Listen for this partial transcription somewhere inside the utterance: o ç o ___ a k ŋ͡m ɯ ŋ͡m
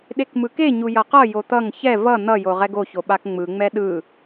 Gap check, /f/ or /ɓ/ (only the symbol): ɓ